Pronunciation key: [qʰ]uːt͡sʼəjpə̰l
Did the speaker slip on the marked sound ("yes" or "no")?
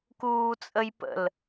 yes